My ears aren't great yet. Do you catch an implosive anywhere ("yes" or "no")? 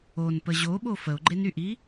yes